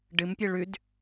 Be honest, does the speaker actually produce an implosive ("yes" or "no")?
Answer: no